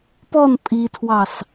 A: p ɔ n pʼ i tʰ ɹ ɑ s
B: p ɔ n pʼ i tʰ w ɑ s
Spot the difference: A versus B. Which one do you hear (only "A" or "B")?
B